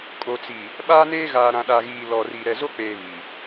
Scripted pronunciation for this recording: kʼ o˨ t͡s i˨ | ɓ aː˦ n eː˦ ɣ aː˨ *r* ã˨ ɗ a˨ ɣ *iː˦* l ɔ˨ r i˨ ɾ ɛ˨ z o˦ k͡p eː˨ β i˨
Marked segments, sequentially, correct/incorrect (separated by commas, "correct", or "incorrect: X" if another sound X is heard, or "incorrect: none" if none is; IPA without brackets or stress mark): incorrect: ɾ, incorrect: iː˨